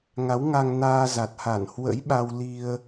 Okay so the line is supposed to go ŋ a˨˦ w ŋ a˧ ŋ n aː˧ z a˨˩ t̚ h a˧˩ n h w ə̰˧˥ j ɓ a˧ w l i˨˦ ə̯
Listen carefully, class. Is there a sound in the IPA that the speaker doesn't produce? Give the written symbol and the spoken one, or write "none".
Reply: i˨˦ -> i˧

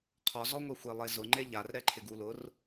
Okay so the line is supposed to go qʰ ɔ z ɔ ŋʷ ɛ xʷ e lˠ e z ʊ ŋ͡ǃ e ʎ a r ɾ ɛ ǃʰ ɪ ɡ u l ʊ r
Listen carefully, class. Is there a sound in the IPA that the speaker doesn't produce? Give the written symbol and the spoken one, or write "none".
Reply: none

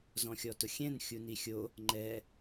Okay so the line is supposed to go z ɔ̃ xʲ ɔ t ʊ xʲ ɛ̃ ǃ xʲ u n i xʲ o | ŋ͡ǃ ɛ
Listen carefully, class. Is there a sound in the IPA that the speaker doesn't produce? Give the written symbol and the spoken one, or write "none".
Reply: ǃ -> n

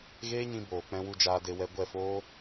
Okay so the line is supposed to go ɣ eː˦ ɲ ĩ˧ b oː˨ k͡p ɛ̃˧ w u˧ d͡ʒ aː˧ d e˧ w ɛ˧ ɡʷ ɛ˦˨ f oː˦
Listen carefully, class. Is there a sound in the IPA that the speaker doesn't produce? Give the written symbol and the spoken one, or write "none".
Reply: none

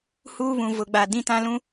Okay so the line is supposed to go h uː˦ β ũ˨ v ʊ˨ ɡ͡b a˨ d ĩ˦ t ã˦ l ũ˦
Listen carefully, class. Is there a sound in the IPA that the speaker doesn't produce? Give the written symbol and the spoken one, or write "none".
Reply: none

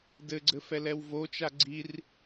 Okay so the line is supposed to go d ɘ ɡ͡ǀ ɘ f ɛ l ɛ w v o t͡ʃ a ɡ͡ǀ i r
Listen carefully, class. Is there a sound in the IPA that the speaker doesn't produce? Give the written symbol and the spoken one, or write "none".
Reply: none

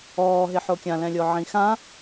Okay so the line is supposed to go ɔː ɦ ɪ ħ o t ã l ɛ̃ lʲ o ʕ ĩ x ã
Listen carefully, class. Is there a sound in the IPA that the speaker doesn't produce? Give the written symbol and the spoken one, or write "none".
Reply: t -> kʲ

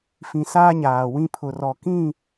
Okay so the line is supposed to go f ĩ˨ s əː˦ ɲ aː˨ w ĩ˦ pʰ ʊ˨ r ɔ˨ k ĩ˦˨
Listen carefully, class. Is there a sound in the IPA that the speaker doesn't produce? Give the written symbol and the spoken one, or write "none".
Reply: əː˦ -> aː˦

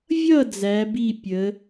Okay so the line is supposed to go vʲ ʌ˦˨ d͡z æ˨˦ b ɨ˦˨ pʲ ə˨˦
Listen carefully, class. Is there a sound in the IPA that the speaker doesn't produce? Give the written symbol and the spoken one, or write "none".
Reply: ɨ˦˨ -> i˦˨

